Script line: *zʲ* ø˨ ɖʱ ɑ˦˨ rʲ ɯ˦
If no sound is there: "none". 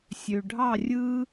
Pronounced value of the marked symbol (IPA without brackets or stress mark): sʲ